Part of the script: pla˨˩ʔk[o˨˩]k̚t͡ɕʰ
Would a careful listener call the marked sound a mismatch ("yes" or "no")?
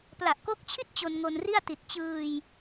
yes